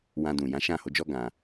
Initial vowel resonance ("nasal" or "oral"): nasal